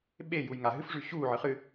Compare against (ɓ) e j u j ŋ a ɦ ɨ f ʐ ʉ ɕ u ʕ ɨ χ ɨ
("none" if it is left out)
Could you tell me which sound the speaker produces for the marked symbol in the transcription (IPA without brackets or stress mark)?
ɓ